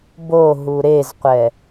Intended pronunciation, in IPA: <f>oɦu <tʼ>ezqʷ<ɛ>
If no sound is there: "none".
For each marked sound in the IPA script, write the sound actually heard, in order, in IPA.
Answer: b, ɾ, ɛ

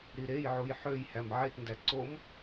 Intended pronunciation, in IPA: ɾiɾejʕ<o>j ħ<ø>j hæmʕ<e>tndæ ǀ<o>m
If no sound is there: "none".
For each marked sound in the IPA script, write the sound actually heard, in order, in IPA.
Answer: u, ø, e, o

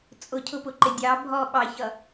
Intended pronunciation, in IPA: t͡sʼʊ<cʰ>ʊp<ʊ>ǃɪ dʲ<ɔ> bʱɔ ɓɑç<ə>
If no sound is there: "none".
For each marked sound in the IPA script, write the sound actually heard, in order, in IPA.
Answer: cʰ, ʊ, ɑ, ʌ

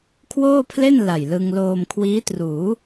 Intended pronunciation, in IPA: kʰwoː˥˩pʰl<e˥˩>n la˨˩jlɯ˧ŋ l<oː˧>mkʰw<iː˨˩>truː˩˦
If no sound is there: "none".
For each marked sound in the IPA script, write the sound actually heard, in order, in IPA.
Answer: e˥˩, oː˧, iː˦˥

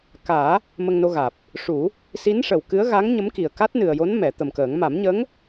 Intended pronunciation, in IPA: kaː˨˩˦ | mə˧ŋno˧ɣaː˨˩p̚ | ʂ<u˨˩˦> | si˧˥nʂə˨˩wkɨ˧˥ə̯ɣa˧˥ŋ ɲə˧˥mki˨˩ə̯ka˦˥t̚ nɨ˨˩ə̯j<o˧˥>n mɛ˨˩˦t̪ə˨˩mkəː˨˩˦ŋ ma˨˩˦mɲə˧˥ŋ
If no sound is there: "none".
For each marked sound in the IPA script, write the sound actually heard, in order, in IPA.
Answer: u˨˩˦, o˧˥

